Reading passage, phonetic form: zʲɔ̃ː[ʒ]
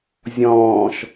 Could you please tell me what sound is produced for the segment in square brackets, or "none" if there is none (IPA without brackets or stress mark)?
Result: ʃ